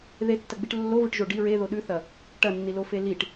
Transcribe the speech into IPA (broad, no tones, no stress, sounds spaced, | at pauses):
ð e tː ɐ ɡ͡b i ʈ lː o v ɨ ʈ ʒ o ɖ i ɹ e ð o ɗ ʉ θ ɐ | ʈ ɐ nː i l o f e l i ʈ